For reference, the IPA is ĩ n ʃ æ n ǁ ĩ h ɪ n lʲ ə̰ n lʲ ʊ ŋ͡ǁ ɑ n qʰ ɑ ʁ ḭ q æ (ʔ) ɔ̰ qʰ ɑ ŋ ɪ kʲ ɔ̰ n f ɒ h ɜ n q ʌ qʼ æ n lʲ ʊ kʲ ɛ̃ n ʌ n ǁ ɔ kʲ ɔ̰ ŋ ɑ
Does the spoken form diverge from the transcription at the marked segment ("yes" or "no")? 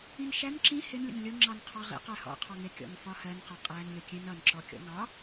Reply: yes